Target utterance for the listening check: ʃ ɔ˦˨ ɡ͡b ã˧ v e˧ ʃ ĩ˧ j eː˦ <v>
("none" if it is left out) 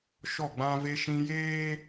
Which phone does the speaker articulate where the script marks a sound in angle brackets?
none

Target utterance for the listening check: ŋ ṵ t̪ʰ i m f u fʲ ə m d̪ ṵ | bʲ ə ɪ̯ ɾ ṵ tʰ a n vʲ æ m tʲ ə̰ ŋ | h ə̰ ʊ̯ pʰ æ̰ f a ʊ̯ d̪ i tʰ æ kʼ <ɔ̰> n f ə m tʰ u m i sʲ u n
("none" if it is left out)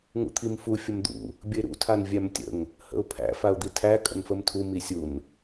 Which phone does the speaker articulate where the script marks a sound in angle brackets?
ə̰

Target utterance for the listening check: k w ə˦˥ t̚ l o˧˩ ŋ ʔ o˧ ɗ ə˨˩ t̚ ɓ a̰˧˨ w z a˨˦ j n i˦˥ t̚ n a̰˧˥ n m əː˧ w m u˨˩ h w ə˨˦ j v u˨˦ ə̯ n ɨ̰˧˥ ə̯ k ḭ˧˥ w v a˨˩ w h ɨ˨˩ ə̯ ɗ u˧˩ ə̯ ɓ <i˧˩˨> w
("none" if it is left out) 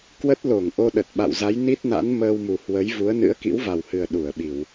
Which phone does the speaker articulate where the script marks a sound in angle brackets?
i˧˩˨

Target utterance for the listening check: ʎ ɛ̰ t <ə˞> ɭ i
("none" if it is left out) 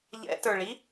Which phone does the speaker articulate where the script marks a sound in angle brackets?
ə˞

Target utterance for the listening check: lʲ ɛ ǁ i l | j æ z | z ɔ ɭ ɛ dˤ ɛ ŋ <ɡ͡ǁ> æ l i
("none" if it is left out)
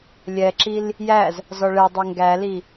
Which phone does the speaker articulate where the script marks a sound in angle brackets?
ɡ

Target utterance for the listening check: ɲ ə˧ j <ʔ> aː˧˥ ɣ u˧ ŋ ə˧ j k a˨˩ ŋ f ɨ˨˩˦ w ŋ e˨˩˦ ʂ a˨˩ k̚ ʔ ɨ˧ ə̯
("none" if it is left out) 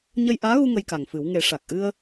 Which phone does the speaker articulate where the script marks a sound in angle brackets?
ʔ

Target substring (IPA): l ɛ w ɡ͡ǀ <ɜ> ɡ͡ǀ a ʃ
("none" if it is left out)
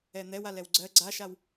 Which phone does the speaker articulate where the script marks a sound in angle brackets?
ɜ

